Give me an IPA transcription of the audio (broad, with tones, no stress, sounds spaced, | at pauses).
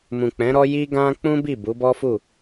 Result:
m ũ˨ k͡p ɛ̃˨˦ ɾ ɔ˦ j i˦ ɡ ã˦ k͡p ũ˦ b i˦˨ b u˨˦ b ɔ˦ f u˦˨